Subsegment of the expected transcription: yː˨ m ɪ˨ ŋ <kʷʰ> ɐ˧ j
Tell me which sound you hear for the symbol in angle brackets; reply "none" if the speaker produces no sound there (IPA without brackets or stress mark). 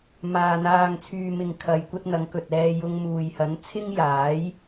kʰ